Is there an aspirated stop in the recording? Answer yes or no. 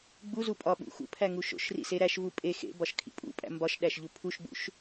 yes